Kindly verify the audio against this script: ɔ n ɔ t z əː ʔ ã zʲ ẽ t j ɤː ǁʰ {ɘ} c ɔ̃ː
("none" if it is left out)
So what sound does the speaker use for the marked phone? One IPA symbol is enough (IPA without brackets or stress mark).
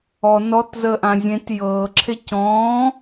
e